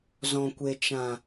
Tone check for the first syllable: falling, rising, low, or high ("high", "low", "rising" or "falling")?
low